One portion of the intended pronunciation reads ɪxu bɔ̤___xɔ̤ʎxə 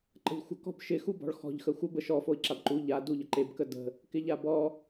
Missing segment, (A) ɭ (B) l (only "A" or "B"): A